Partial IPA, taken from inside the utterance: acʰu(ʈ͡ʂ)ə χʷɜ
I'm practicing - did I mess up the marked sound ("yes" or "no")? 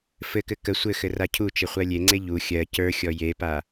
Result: yes